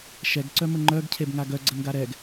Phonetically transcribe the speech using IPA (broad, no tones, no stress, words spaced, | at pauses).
ʃɛɡǀœmə ŋ͡ǃœɡcʰebŋa ɡœɡ͡ǀənɡa ɾɛɡ